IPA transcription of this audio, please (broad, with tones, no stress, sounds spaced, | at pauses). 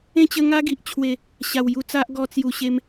ẽ˥˧ t͡ɕ ə˧ ŋ a˦ ɡ i˨ ʔ t͡ɕʰ w e˨˩ | ɕ a˨˩ w j u˧ t͡s a˦ ʔ ɡ ɔ˧ t͡s j u˨˩ ɕ e˧ m